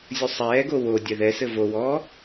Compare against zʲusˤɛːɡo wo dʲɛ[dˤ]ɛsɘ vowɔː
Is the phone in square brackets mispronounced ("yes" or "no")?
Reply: yes